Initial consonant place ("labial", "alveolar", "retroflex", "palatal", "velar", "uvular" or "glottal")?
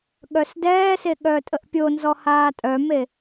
velar